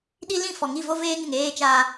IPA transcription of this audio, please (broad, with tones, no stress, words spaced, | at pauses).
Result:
ɗi˦ lĩ˦˨fɔ˨ŋi˦˨vo˦ veː˦ŋ ɪ˨ŋ eː˦ t͡ʃaː˦